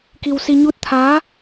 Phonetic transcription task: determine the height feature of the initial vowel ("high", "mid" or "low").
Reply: high